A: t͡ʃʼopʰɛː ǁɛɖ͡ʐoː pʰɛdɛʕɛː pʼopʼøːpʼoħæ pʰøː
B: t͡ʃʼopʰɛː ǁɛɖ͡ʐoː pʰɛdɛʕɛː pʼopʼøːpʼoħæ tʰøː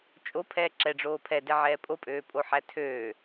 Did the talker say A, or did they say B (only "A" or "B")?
B